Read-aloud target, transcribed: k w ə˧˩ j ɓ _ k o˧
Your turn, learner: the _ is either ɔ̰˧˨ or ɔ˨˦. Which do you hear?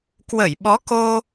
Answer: ɔ˨˦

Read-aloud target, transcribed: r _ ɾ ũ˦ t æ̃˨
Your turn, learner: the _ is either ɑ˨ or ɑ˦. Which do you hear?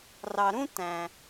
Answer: ɑ˨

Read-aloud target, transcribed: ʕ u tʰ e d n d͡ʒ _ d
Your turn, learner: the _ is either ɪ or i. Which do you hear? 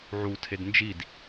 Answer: i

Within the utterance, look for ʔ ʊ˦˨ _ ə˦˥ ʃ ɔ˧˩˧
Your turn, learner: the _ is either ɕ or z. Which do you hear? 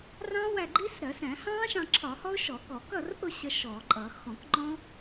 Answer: ɕ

